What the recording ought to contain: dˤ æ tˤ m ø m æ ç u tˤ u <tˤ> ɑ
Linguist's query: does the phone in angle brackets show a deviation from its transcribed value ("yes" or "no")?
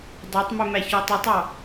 no